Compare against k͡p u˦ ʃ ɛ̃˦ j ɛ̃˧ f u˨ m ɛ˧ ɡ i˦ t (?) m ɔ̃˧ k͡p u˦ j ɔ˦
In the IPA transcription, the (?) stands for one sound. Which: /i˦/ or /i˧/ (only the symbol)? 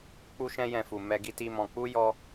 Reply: i˦